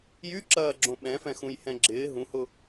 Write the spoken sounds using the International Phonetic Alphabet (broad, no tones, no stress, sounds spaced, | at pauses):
j y ǁ ɐː ɡ͡ǁ õ ɓ ɛ̃ f ɛ̃ x ũ j h ɛ̃ ɡ͡ǁ ɪː ɦ ũ h ʊ